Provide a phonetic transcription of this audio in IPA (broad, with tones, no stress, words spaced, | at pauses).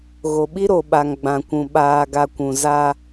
ɣo˨ɓi˦ɾo˨ɓa˨ŋ ɡ͡bã˨kʷũ˨ ɓaː˨ɡa˨ kʷũ˨za˦